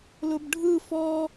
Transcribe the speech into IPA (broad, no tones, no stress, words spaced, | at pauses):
lʊbɖʱɯ fɔ